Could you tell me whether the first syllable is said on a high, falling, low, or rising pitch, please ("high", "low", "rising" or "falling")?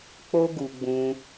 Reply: high